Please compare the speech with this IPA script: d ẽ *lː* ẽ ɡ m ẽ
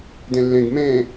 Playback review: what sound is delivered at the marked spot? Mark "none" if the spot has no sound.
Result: lː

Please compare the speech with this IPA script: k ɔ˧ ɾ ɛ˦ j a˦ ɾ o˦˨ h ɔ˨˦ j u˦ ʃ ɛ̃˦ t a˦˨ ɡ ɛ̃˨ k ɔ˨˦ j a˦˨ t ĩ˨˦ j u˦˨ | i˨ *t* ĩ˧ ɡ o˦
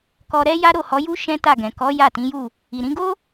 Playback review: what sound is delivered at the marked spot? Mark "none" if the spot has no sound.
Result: ɾ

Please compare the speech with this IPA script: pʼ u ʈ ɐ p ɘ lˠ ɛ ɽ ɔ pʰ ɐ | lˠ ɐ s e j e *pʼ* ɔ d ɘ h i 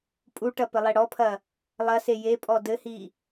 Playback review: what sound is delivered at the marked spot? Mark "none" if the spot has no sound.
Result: pʼ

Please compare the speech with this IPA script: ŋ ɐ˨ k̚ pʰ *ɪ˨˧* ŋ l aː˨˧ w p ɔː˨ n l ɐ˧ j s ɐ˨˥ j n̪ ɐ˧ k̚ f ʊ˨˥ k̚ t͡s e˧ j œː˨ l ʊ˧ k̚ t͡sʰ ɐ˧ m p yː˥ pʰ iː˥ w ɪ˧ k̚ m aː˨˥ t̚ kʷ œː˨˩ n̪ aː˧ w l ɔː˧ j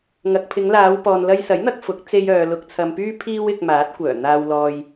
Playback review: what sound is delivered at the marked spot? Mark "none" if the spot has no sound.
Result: ɪ˨˧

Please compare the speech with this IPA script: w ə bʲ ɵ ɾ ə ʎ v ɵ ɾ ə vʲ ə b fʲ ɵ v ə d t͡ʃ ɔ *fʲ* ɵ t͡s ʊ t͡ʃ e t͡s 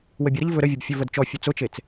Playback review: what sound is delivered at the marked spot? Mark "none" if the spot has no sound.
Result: fʲ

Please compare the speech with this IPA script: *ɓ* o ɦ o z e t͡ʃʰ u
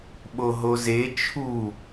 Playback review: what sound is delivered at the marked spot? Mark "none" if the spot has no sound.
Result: ɓ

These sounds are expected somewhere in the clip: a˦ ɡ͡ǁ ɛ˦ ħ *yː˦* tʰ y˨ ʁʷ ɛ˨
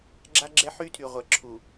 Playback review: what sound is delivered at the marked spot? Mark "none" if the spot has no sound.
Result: y˦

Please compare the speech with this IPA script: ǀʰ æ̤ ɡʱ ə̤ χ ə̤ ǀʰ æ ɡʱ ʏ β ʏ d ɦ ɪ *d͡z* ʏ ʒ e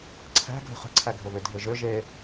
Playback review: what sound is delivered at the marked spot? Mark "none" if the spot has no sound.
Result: ʒ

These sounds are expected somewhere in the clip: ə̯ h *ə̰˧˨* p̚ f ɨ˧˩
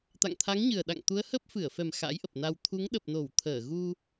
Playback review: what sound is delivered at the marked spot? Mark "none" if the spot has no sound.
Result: ə˦˥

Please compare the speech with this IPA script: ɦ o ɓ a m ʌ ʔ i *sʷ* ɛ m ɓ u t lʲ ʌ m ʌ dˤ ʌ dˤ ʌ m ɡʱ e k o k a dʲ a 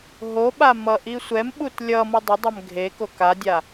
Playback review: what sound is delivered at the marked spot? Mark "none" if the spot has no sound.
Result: sʷ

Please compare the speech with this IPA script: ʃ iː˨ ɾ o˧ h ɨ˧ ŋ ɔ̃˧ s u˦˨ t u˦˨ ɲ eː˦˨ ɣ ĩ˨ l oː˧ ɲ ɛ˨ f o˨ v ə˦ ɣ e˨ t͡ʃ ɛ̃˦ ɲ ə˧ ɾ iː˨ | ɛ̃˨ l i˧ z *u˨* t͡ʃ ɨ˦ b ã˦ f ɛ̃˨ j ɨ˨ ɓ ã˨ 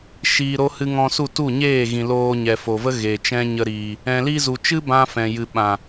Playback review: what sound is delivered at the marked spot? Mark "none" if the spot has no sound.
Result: u˨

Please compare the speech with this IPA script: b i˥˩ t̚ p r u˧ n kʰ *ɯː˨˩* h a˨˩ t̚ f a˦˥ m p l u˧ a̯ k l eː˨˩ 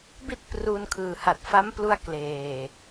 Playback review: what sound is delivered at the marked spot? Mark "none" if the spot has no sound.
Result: ɯː˨˩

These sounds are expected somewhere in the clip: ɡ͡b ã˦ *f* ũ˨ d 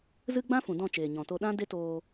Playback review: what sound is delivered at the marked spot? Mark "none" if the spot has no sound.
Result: f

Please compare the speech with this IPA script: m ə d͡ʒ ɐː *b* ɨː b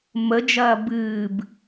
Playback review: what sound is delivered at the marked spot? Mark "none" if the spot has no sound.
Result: b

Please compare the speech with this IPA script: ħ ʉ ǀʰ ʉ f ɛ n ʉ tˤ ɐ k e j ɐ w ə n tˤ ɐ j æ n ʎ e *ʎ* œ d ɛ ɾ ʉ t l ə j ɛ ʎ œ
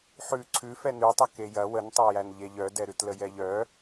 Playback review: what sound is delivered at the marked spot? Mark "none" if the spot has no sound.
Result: ʎ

